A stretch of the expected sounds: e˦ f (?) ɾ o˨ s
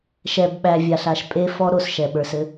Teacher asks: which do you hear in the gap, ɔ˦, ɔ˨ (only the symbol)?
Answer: ɔ˦